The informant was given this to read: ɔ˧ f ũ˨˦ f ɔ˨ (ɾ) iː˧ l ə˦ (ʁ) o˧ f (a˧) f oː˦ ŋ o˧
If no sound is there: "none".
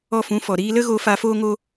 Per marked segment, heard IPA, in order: ɾ, ɣ, a˧

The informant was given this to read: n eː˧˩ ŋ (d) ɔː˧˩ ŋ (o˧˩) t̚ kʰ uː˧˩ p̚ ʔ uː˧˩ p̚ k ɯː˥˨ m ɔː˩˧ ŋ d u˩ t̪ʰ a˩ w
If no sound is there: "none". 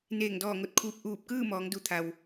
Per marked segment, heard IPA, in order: d, o˧˩

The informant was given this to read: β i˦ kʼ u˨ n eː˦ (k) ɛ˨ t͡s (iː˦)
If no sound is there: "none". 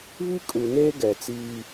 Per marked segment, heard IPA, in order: ɡ, iː˦

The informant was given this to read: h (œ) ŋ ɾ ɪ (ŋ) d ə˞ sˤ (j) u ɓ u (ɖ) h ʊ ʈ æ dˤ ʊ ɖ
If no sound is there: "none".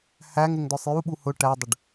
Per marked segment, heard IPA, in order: æ, ŋ, j, none

